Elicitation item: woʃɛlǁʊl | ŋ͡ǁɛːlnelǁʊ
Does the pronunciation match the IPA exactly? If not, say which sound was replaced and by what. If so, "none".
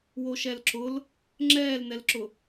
e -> ɛ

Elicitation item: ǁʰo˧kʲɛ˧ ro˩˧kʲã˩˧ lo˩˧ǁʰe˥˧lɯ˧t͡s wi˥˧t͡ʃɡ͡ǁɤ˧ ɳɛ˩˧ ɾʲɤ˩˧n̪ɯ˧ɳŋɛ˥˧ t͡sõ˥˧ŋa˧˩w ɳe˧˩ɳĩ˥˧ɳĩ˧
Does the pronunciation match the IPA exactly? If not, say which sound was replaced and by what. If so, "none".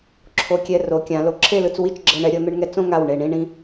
none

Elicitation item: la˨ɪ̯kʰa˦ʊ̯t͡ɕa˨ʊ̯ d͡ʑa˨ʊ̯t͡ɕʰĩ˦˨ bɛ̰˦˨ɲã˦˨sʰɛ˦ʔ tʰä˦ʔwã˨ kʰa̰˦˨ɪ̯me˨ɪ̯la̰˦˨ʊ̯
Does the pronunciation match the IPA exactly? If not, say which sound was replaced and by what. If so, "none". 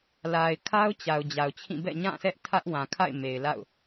none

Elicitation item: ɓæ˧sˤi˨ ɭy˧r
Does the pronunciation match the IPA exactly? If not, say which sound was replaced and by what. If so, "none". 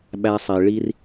y˧ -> i˧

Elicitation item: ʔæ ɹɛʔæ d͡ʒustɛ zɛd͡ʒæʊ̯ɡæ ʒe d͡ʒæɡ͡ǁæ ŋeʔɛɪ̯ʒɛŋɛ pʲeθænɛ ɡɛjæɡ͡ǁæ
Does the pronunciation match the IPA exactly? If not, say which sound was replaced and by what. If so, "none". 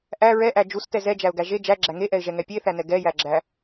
none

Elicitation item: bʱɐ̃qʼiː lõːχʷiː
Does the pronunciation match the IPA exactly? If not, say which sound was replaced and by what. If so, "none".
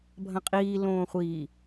none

